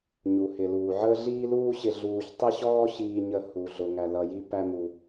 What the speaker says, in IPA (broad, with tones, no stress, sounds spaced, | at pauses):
ɲ u˩ h ɪ˩ l uː˩ ʕ əː˥ ɮ iː˥ l uː˥ ɕ ɪ˧ ɮ uː˧ ç tˤ ɪ˥ ɕ ɔː˥ ɕ iː˧ ɲ ə˧ h u˩ ɮ ʊ˩ ŋ æ˩ l ʌ˩ j i˧ p æ˧ m u˩